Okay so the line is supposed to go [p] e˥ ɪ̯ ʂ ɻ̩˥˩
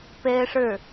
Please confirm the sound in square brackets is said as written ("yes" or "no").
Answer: yes